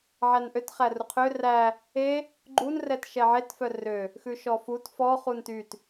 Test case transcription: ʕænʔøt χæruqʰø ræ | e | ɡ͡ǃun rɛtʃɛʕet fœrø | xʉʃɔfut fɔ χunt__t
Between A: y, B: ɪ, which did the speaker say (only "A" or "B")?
A